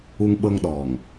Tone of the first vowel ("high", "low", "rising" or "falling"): high